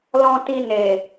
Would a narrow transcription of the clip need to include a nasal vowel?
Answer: yes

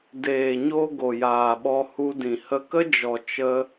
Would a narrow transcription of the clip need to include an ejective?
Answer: no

